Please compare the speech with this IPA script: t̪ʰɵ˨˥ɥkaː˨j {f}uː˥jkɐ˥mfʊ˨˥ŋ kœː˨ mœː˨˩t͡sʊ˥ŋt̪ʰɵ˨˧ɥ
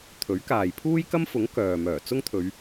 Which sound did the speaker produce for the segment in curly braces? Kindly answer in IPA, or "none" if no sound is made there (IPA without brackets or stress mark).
pʰ